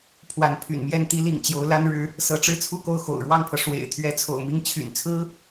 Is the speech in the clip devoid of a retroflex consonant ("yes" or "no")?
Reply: no